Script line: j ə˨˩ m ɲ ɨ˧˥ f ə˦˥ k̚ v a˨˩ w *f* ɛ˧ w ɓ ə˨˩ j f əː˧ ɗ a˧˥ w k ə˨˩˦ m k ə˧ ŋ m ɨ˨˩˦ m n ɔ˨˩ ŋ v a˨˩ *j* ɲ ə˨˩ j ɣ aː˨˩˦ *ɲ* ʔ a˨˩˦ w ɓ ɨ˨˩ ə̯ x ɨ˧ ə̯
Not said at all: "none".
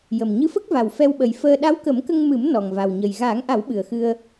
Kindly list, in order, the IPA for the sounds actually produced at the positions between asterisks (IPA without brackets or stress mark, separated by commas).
f, w, ŋ